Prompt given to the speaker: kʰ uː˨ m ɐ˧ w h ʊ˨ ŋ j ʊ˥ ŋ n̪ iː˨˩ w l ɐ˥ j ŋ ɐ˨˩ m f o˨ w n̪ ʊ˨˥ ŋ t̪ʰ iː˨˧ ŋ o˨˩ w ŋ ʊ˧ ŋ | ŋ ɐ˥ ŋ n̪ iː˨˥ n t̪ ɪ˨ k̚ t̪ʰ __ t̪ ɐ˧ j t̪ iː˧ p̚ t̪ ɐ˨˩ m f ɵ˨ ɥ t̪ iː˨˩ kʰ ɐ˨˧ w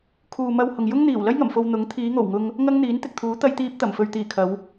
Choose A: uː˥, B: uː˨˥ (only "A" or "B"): B